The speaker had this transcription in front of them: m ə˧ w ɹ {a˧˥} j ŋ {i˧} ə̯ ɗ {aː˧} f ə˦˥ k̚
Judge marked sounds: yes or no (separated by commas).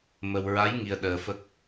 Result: yes, yes, no